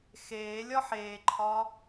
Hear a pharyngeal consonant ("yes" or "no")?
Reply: yes